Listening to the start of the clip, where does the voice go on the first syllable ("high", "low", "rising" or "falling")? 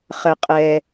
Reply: low